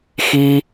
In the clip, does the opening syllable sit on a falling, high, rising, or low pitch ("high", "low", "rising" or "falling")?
high